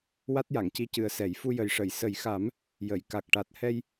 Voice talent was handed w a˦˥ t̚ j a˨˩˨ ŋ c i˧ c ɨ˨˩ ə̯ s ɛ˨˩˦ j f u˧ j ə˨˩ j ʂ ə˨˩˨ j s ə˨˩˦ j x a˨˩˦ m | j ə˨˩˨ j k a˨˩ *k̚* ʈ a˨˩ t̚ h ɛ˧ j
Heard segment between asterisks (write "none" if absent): k̚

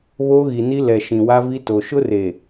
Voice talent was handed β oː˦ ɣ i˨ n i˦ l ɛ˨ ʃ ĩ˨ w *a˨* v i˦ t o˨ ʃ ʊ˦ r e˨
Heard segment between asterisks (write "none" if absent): a˦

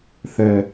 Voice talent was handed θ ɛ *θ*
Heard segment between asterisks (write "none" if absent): none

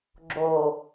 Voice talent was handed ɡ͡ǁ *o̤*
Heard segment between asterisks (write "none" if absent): o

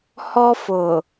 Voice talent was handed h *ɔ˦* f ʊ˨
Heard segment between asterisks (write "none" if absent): ɔ˦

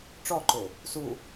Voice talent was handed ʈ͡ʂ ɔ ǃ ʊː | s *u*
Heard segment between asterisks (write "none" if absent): uː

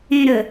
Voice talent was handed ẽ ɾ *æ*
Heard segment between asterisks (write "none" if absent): ə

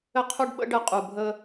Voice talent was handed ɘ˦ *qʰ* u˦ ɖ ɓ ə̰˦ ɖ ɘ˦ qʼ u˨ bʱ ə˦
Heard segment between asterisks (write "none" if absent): qʰ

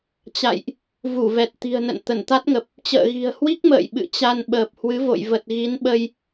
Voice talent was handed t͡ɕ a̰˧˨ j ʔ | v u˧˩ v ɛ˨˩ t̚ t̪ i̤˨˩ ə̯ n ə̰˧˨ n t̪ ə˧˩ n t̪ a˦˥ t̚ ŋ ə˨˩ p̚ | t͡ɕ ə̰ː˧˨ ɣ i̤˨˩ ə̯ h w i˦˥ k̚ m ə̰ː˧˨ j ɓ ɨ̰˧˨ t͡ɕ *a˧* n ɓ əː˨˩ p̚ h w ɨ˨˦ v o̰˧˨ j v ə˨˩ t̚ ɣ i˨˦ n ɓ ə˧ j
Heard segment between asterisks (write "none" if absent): a˧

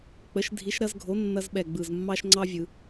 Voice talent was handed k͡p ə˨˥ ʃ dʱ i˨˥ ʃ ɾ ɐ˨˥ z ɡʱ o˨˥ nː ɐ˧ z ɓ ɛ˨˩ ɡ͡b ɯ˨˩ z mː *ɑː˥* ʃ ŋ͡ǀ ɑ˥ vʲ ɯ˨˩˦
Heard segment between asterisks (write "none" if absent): ɑ˥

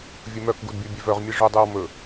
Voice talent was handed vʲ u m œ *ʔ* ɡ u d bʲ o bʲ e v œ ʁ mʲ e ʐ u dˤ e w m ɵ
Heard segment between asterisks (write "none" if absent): k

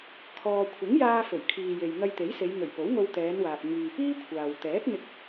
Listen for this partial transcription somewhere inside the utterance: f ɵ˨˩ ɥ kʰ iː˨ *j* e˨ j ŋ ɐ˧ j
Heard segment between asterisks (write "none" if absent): j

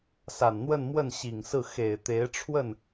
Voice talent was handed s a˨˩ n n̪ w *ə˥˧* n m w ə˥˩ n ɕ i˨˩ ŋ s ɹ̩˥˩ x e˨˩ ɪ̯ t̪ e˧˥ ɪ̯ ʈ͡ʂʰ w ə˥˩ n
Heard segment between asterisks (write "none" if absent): ə˥˧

